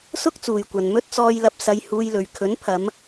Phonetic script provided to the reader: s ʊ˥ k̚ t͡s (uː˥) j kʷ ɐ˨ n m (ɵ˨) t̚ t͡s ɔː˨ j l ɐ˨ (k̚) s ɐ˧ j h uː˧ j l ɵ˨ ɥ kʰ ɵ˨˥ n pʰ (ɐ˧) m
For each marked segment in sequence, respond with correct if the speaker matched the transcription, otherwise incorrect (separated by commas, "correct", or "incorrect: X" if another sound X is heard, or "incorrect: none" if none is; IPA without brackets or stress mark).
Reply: incorrect: uː˨, incorrect: ɵ˧, incorrect: p̚, incorrect: ɐ˨˧